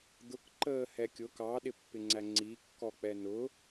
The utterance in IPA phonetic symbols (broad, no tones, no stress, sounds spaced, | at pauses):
d̪ ʊ k ǃ əː h ɛ kʲ ʊ k ɑ ɗ ɪ pː ɪ ŋ͡ǀ æ ŋ͡ǀ i kː ɔ k͡p ɛ n ʊ